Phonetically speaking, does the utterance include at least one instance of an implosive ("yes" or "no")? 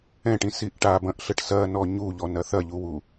no